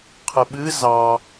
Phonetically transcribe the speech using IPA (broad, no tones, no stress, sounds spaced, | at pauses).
qʰ ɨ ɓ ɨ z ɑ